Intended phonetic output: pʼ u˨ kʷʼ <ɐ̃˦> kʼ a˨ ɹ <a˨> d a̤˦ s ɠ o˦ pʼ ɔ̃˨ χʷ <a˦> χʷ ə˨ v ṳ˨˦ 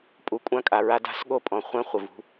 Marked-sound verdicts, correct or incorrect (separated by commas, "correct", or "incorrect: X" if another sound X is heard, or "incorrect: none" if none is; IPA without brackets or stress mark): incorrect: ã˦, incorrect: a˦, incorrect: ã˦